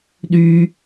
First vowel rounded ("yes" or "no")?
yes